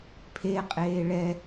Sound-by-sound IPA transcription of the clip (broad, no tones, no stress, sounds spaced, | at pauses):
pʰ e qʼ eː ɭ ɛ